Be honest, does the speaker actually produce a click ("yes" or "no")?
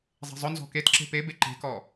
yes